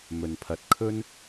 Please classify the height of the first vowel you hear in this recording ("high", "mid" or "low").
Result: mid